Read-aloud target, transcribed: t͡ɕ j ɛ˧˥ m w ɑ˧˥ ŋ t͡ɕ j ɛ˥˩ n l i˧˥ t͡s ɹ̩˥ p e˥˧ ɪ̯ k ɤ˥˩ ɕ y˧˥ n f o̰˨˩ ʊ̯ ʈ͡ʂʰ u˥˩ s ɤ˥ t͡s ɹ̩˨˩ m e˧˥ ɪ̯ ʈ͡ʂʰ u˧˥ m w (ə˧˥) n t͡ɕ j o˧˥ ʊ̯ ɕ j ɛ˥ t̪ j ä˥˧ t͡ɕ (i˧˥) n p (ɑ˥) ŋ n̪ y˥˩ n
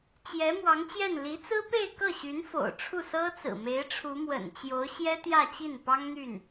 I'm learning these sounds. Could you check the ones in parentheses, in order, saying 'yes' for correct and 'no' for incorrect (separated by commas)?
no, no, yes